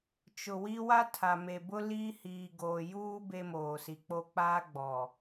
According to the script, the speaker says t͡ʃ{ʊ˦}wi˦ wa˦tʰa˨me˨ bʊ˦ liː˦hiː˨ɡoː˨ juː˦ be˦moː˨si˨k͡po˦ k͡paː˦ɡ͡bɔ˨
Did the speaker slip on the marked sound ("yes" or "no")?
yes